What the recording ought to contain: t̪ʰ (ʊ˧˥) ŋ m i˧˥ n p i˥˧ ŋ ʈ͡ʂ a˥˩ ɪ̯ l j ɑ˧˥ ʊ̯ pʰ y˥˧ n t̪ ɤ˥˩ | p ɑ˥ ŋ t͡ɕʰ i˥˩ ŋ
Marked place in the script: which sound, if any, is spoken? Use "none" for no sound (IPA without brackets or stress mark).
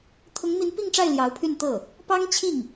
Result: ʊ˧˥